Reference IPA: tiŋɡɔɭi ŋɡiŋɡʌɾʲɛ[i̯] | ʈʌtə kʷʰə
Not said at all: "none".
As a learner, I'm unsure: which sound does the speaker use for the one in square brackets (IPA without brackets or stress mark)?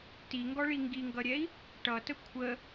i̯